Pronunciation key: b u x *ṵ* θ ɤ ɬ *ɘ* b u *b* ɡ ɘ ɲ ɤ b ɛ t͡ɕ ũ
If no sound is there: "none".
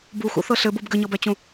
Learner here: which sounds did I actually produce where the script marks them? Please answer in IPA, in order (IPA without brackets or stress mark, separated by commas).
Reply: ṵ, ɘ, b